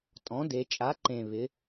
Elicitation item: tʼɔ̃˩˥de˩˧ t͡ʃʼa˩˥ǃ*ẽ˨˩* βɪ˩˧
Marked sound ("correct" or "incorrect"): correct